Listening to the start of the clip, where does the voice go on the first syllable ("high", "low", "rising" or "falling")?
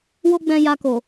high